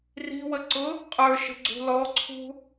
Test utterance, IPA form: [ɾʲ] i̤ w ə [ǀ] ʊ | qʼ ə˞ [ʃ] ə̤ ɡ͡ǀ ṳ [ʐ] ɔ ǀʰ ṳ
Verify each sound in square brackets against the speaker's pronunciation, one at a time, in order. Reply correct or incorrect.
incorrect: r, correct, correct, incorrect: l

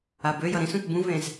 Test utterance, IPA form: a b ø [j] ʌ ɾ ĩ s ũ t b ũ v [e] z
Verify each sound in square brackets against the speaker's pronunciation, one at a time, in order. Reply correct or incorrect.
correct, incorrect: ẽ

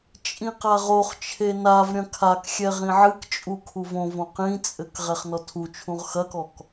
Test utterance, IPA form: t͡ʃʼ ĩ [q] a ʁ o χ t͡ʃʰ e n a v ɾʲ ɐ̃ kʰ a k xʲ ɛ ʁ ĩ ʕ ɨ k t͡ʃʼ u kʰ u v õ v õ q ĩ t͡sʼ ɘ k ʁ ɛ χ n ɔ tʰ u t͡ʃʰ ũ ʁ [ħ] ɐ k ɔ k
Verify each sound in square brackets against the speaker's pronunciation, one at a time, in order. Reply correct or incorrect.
correct, incorrect: x

